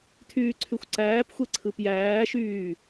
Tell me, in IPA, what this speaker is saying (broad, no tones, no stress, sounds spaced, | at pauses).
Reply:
tʰ yː ǀʰ y xʷ ǀ æː p xʷ e ǀʰ ɯ p j æː ʃ yː